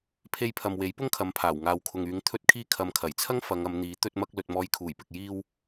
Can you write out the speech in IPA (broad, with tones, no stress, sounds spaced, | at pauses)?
pʰ e˧ j pʰ ɐ˨ m w e˨˥ j p ʊ˥ ŋ kʰ ɐ˨˥ m pʰ aː˨˩ w ŋ aː˨ w kʰ ʊ˨ ŋ yː˨˧ ŋ t̪ʰ ɵ˥ t̚ kʰ iː˥ kʰ ɐ˨ m kʰ ɐ˨˩ j t͡sʰ ɐ˥ ŋ f ɐ˨˧ ŋ ɐ˨˧ m n̪ iː˨˥ t̪ ɵ˧ t̚ m ɐ˧ k̚ l ɵ˨ t̚ m ɔː˨˧ j kʰ uː˨˩ j p ɪ˨ k̚ j iː˧ w